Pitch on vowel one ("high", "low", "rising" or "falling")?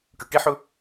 low